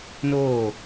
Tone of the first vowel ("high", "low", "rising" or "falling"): falling